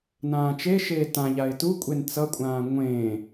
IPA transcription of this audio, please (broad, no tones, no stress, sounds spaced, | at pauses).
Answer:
n ãː t͡ʃ e ʃ eː t ã ʎ a ɪ̯ t u kʷʼ e n t͡s ʌ kʷʼ ãː ŋʷ ẽː